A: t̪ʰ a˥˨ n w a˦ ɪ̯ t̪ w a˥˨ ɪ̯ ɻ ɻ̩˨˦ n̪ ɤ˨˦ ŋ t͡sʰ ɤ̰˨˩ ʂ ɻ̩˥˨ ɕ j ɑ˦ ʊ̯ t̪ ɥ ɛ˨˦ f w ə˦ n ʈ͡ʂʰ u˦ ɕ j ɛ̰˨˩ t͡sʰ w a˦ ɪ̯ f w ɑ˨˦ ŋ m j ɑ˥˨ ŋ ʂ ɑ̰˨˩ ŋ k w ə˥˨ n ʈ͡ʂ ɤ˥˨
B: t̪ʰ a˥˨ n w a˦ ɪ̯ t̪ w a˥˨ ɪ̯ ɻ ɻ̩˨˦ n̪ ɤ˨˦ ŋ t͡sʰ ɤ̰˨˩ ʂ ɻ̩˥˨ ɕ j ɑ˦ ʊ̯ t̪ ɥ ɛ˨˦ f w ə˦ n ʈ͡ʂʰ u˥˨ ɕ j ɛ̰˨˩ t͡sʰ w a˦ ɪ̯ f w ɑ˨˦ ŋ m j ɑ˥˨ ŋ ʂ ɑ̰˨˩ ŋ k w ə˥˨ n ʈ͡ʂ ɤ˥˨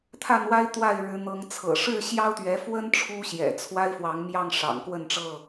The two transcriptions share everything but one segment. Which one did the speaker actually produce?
A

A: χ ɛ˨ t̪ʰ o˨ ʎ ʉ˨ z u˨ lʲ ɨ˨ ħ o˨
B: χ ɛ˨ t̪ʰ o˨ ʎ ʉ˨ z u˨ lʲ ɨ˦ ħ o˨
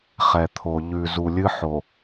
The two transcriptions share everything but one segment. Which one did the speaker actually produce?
B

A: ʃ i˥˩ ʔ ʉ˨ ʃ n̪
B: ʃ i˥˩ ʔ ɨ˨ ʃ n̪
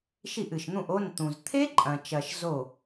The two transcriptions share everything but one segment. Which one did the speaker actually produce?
B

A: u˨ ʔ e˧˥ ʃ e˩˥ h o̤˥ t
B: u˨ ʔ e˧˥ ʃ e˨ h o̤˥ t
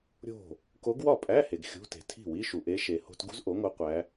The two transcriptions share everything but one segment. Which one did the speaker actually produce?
B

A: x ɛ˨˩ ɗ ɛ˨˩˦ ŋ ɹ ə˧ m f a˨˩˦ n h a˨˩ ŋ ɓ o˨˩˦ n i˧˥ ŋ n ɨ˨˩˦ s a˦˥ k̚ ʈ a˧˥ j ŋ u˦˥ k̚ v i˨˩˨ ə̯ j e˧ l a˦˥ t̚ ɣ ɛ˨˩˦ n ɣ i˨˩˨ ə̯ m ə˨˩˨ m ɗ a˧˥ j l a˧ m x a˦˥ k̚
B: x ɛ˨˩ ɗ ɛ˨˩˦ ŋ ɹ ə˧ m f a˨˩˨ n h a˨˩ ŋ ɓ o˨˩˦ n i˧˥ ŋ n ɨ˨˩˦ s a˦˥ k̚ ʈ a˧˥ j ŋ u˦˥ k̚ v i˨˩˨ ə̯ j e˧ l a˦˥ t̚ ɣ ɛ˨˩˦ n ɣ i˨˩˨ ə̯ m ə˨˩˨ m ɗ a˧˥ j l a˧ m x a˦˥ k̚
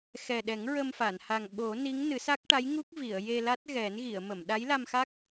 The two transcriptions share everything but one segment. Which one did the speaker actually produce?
B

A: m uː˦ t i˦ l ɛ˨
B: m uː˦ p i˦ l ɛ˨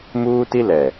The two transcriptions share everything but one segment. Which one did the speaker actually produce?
A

